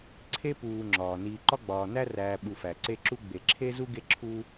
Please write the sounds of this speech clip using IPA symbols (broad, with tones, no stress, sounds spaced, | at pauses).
ǀʰ e˥ p uː˨ ŋ͡ǁ ɒː˩ n iː˨ ǃ ɒ˥ ɡ͡b ɒː˨ n æ˥ r æː˨ ɓ u˨ f æ˩ ǀ e˦ ǁ u˥ ɡ͡b e˩ ǁʰ e˥ z u˥ ɡ e˦ ǁʰ u˦